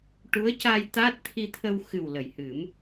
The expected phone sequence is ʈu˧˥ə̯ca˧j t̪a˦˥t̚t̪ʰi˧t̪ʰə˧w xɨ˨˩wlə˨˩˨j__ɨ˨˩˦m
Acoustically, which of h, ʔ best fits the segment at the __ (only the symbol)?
h